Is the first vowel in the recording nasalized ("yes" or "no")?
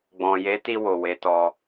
yes